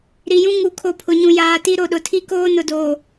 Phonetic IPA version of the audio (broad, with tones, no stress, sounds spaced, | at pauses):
ɾ i˨ j ũ˦ ŋ u˨ kʰ o˨ pʰ ʊ˨ ɲ ũ˨ j aː˨ t i˦ ɾ o˨ ɗ ʊ˨ tʰ i˦ k oː˦ n ʊ˨ d oː˨